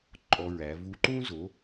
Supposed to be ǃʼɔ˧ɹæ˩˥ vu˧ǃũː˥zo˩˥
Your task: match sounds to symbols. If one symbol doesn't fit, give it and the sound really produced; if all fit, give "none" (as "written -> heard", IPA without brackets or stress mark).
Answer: none